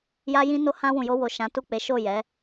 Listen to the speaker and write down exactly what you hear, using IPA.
j a˧ j ĩ˧ n o˧ h ã˧ w ũ˨ j o˧ w o˨ ʃ ã˨˦ t u˦˨ k͡p e˨˦ ʃ o˦˨ j ɛ˨˦

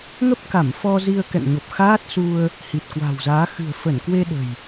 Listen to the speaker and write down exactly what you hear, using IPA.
ŋ ə˦˥ p̚ k a˧˩ m f ɔ˧ z i˧ ə̯ k ɛ̰˧˨ ŋ ɲ o˨˩ p̚ x aː˦˥ t̚ s u˧ ə̯ | h i˨˩ t̚ k w a̤˨˩ w z aː˨˦ x ɨ̤˨˩ ə̯ f ə˧˩ n k w e˧ ɗ ə̤˨˩ j

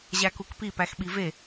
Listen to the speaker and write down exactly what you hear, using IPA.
ʑ æ k u k p i p æ x ɓ i v e

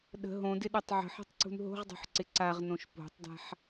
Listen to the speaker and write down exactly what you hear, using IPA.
ɗ ə̤ ɦ õ d ɪ ɗ ɛ tˤ ʕ ə̤ ħ e̤ tˤ ǀ ṳ n ɦ o̤ ʁ dˤ o̤ ħ ǀ ɪ ǀ a ʁ n õ ʃ p o̤ tˤ d a̤ ħ

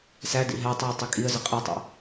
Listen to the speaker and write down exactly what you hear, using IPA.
s æ d ḭ ɦ æ tˤ i ʊ̯ tˤ i kʼ i ə̯ z ə qʼ i tˤ æ̰

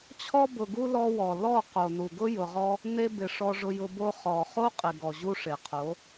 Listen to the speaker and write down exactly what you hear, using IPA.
t͡ɕʰ ɔ˧ b ʊ˨ ɡ u˧ l ɔ˧ w ɔ˨ l ɔ˦˨ q o˨ n u˨ ɡ ʊ˦ j ʊ˨ ʁ ɔ˦ | n e˧ b ɪ˨ ʂ ɔ˧ ʐ ʊ˧ j ʊ˧ b o˦ χ ɔ˨ χ o˦ qʼ ɪ˨ ɡ ɔ˨ ʑ u˧ ʂ e˨ qʰ o˨˦

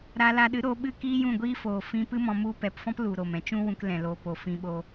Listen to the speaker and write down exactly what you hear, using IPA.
ɾ a˧ l a˧ ɗ ɨ˨˦ ɾ oː˧ ɓ ɨ˦˨ k iː˦ j ũ˦˨ ɡʷ iː˦ f oː˨ f ĩ˧ p ɨ˦ m ɔ̃˧ m u˦ p ɛ˧ p f ɔ̃˦ p l u˨ ɾ o˦˨ m ɛ̃˧ t͡ʃ ũ˦ w ũ˧ k l ɛ̃˨ l o˨ p o˨ f ĩ˧ ɓ o˧

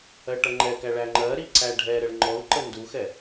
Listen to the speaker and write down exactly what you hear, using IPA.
ɜ ʈ ʌ ŋ͡ǃ ɛ k æ ɭ æ ŋ͡ǃ ɜ ɾ i ǀ æ ɖʱ ɛ ɾ ə ɭ ŋ͡ǃ ɔ u̯ ǃ ə n d u x ɛ

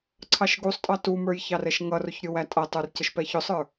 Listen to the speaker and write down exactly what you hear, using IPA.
ǀʰ ɑ ʃ ɡ u sˤ tʼ ɑ t u m ə˞ j ç ɑ r ɛ ʃ ŋ ʌ r ʊ ç ɾʲ ʊ w æ tʼ ʌ tˤ ə˞ r c ə ʃ p ɛ ç ʊ sˤ ə˞

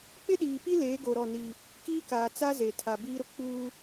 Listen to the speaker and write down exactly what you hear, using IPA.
k͡p ɪ˦ ɗ iː˨ p i˦ l eː˨˦ ɡ o˨ ɾ ɔ˦˨ n i˦ | k iː˦ k aː˨ t͡s a˦ z e˨ tʰ a˨ b iː˦ ɾ ʊ˦ k͡p uː˦

